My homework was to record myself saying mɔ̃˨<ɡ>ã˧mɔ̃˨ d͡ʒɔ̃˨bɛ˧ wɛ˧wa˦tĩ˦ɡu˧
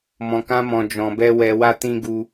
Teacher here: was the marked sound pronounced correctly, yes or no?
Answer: no